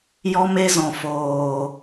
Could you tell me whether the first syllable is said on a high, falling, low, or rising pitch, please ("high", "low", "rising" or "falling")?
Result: high